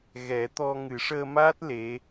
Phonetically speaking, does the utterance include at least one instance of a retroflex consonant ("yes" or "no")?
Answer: yes